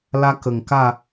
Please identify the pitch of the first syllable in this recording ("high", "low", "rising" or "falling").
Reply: high